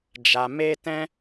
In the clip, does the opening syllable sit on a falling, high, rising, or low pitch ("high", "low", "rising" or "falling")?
low